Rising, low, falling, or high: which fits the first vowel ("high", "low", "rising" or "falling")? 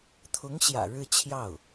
rising